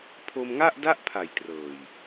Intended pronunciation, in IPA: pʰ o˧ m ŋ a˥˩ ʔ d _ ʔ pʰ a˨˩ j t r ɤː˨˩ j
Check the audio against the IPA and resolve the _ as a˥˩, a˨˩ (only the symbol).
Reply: a˥˩